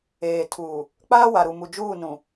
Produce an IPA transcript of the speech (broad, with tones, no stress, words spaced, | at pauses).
eː˨tʰuː˨ | k͡paː˦wa˨ɾu˨mu˨ d͡ʒuː˦˨nũ˨